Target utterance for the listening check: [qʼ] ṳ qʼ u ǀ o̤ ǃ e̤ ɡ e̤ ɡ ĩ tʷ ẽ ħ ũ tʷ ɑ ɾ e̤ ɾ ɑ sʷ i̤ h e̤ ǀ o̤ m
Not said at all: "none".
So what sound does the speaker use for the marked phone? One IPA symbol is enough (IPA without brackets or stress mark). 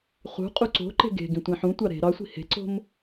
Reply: χ